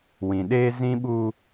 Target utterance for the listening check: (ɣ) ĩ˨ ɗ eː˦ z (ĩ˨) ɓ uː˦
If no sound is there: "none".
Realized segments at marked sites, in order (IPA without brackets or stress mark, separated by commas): w, ĩ˦